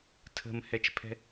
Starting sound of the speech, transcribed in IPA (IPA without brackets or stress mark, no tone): tʰ